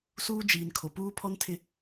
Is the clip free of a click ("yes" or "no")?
yes